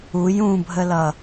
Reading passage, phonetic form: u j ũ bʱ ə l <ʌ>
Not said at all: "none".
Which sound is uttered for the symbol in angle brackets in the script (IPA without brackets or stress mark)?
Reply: ʌ